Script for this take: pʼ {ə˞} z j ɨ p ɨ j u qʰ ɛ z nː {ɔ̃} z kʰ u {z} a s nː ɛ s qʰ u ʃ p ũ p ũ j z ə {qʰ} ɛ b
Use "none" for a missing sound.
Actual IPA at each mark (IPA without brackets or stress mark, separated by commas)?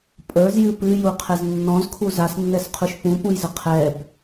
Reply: ə˞, ɔ̃, z, qʰ